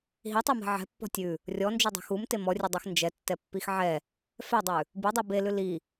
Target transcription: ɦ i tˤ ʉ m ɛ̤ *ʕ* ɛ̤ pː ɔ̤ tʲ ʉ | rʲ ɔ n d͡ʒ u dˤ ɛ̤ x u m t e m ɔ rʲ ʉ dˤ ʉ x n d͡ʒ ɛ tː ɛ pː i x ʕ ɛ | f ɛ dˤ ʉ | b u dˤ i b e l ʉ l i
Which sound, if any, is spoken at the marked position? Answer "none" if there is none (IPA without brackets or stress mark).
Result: ʕ